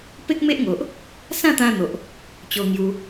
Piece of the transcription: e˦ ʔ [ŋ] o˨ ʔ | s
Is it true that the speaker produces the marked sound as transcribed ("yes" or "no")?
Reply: yes